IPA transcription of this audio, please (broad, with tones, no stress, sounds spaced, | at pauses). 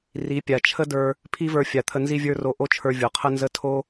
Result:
r i˨˦ pʲ a˨ t͡ʃʰ ə˦ d ə˞˧ | pʰ i˦ v ə˞˧ fʲ a˨ t̪ʰ ə˧ n z i˦ vʲ ə˞˦ r o˧ ʔ o˦ t͡ʃʰ ə˞˧ vʲ o˨ qʰ ə˦ n z ə˦ tʰ o˦